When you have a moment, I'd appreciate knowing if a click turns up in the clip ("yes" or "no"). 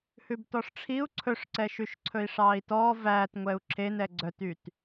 yes